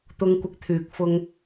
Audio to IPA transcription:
t̪ʊ˧ŋkʷɪ˧k̚t̪ʰyː˨k̚fʊ˧ŋ

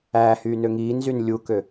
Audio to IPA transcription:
æːhyːnø ŋiːnzyn lʲukø

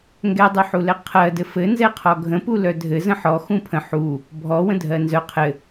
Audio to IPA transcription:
ŋɡɛdˤuħulɛ qʰɜdɘ fɘnzɛqʰɔ ɡʱə̃pu lœdʱɘ zə̃ħɔ xũpʰə̃ ħu | bʱɔwə̃ dʱɜnzœ qʰɘ

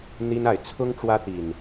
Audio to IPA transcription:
n̪i˦na˨ɪ̯ t͡sʰʊ˦ŋ ʈ͡ʂwä˦t̪i˨˩n

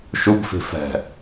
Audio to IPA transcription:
ʃubfi̤ fɛ̤

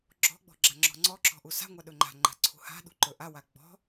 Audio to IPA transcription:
ɡ͡ǁɔ̤ɡ͡bɔ̤ ɡ͡ǁaŋ͡ǁɔ̤ŋ͡ǀɔǁɔ̤ ʔusa̤ŋʷa ɗɵŋ͡ǃa̤ŋ͡ǃa̤ ǀʰṳha̤ɗṳ ǃɵʔawa ɡ͡bɔ̤

